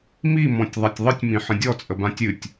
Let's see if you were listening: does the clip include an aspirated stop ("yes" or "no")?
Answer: no